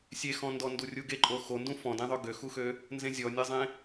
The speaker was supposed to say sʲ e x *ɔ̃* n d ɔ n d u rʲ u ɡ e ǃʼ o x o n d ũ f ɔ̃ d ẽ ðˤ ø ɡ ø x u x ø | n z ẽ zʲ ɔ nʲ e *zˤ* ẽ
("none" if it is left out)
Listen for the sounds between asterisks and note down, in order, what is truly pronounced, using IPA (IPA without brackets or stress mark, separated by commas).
ɔ̃, zˤ